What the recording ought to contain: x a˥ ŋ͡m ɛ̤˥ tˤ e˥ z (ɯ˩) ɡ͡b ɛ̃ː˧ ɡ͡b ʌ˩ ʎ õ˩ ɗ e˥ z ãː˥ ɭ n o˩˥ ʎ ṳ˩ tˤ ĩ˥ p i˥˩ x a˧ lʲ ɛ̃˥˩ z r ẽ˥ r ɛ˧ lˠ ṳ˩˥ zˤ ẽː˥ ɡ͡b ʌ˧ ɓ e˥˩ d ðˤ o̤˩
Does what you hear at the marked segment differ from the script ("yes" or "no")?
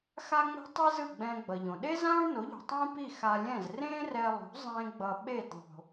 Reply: yes